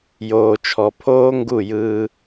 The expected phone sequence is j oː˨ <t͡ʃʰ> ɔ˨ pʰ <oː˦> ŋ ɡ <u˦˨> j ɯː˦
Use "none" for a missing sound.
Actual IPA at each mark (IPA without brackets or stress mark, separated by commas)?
t͡ʃʰ, oː˦, u˦˨